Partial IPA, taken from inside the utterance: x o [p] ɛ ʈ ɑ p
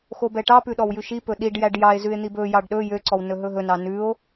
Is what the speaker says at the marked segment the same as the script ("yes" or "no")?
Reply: no